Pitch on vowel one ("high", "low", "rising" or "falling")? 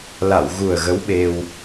low